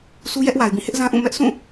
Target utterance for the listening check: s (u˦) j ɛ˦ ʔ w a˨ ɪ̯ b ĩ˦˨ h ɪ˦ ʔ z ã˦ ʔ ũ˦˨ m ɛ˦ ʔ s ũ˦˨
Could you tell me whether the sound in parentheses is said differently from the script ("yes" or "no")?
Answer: no